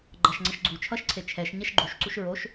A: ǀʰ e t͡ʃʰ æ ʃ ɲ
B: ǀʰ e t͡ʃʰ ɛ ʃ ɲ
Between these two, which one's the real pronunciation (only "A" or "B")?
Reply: B